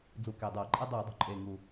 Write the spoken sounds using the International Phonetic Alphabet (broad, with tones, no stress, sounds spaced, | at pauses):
d͡z u˧˩˧ k e˨˩ dˤ ɤː˧˩˧ ǃʼ e˥ dˤ iː˧˩˧ dˤ ṳ˨˩ ǃʼ eː˨˩ ŋ u˨˩